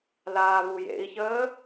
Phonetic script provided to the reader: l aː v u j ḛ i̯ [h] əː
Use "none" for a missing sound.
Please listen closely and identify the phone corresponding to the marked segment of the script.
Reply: ç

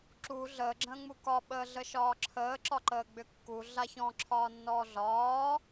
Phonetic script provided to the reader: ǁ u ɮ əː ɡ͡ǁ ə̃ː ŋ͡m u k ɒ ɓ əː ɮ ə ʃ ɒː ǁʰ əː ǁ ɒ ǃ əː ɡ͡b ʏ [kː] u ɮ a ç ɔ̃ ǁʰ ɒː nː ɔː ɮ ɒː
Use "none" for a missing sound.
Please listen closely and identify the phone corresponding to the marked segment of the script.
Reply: kː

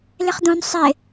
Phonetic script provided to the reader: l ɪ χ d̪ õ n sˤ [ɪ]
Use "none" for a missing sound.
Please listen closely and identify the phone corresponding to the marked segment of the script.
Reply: ɪ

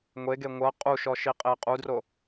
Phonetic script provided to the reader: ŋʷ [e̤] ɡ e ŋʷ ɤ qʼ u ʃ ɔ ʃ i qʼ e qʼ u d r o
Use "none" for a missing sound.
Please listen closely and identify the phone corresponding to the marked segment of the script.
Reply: e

